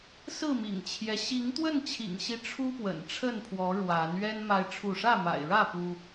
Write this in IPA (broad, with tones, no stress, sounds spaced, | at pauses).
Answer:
s ɹ̩˥˨ m ḭ˨˩ ŋ t͡ɕʰ j ɛ˦ ɕ i˨˦ ŋ t̪ w ə˥˨ n t͡ɕʰ ḭ˨˩ ŋ ɕ i˨˦ ʈ͡ʂʰ u˦ p w ə̰˨˩ n ʈ͡ʂʰ ə˥˨ n pʰ w ɔ˨˦ ɻ w a˨˦ n ɥ ɛ˦ n m a˦ ɪ̯ ʈ͡ʂʰ u˥˨ ʂ ä˥˨ m a̰˨˩ ɪ̯ ɻ ä˥˨ p u˦